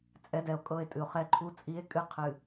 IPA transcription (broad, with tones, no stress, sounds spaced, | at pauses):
t͡sʼ ɛ˨˦ d ɛ˨ o̯ kʼ ɤ˦˨ e̯ tʼ ɨ˨ o̯ χ ɛ˦ ǃʰ u˦ t͡sʼ i˦ e̯ kʼ ɨ˦ qʰ ɨ˨